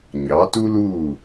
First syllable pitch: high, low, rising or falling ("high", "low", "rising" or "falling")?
rising